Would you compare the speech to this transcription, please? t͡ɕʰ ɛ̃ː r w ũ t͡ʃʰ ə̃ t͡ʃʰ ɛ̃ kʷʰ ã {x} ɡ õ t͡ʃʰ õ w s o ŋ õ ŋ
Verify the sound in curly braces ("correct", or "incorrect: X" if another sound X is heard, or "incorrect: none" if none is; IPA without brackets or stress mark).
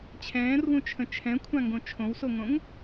incorrect: ŋ